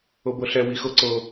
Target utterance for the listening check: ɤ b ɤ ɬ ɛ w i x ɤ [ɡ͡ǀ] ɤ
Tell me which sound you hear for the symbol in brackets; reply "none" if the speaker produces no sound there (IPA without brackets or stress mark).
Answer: ǀ